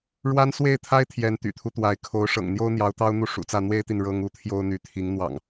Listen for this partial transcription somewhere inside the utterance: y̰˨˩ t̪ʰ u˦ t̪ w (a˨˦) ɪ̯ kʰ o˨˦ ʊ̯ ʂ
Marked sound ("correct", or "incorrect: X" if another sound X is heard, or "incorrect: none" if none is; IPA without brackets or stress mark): correct